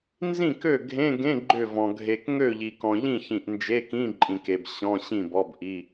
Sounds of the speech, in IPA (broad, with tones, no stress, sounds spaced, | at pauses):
n z ĩ˥˩ k ø˥˩ ɡʱ ẽ˧˥˧ ɡ ẽ˧˥˧ ɡ͡ǃ ʏ˥˩ v ɔ̃˨ ɡʱ e˨ k ŋ ø˥˩ ʎ i˨ k ɔ̃˨ ʎ ĩ˥˩ ç ĩ˨ ʔ n d͡ʒ e˧˥˧ k ĩ˧˥˧ ǃʼ ĩ˨ k e˨ b ɕ ɔ̃˧˥˧ ɕ ĩ˥˩ b ɔ˧˥˧ b ʔ i˧˥˧